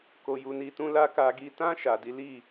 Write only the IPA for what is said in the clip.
k o˧ j u˧ n i˦ t ũ˦ l a˦ k a˧ ɡ i˧ t ã˦ ʃ a˧ d i˦ l i˦˨

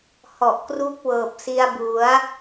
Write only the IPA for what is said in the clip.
h ɔ˨˩ ʔ k r u˦˥ k̚ w ɤː˨˩ p̚ s i˧ a̯ b u˩˦ a̯

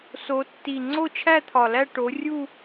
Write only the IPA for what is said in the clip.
s o˨˦ tː i˨˩ ŋ͡ǀ o˥˧ t͡ʃʰ æ˥˧ t̪ʰ ɒ˨˩ l æ˥˧ ʈ o˨˦ rʲ u˥˧

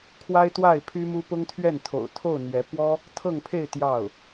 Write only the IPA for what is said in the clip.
kʰ w a˥ ɪ̯ t̪ w a˥˩ ɪ̯ pʰ y˥ m u˥ p ʊ˥ ŋ t̪ʰ ɥ ɛ˥˩ n t̪ʰ o̰˨˩ ʊ̯ t̪ʰ o˥˩ ʊ̯ n̪ ɥ ɛ˧˥ p w ɔ˥ | t̪ʰ ɤ˥˧ ŋ pʰ e˥˧ ɪ̯ t̪ j ɑ˥˩ ʊ̯

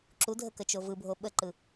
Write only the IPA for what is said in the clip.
ǁ u dʱ ə k ə t͡ʃ o v ɯ bʱ o ɓ ə ǃ ɯ

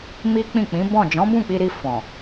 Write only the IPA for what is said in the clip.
m i˦ k͡p ĩ˦˨ k͡p ĩ˨˦ b ɔ̃˦˨ d͡ʒ ɔ̃˨˦ b ũ˦˨ k͡p i˧ ɾ i˧ f ɔ̃˨

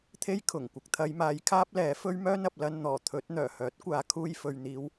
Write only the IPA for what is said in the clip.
t̪ʰ e˥ j kʰ ʊ˨˩ ŋ kʷ ɪ˨ k̚ t̪ʰ ɐ˨˧ j m aː˨˧ j kʰ aː˥ p̚ l ɛː˨˥ f ɵ˥ ɥ m œː˥ n ɐ˨ p̚ l ɐ˧ n n̪ ɔː˨˩ t̪ʰ ɵ˨˥ t̚ n̪ œː˨˩ h œː˨˥ t̚ kʷ aː˨ kʰ uː˧ j f ɵ˨ ɥ n̪ iː˨˧ w

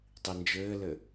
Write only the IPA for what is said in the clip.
tˤ i n d͡ʒ ɘː l ɘ

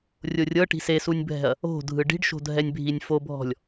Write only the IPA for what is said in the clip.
rʲ o rʲ ɤ ʈ i̤ s e s u nʲ bʱ ɛ̤ ɐ̯ | o̤ dʱ ɯ ɖ i̤ ɖ ʃ o̤ dʱ ɛ nʲ bʱ i nʲ f o bʱ ɔ̤ lʲ

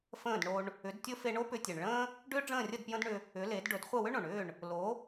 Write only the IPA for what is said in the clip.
f ə̃ː˥˩ d ɳ o˧ ɳ | ʏ˩˥ d tʲ ɵ˥ f e˧ ɳ o˥ p ʏ˧ tʲ e˩ ɳ ɭ ə̃ː˥ | ɖ ʏː˥ ɖ͡ʐ ə̃ː˥˩ rʲ ə˥˩ d p j ə̃˥ d ɳ ʏ˧ | ʏ˩˥ l e˩˥ d ɖ ɵ˩˥ d χʷ ə˥˩ w ʏ˥ ɳ õ˩ ɳ ʏː˥˩ ɳ | l o˩˥

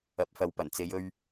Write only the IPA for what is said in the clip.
ɐ˨˥ p̚ f ɐ˨˧ w p ɐ˨˩ n t͡s e˨˧ j ɵ˧ ɥ

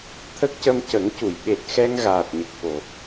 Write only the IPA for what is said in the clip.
t̪ʰ ə˦˥ k̚ c ə˧ m c ə˨˩˦ ŋ c u˨˩˨ j ɓ e˨˩ t̚ x ɛ˧ ŋ ɣ aː˨˩ t̚ ɲ ə˨˩ k̚ f o˨˩˨

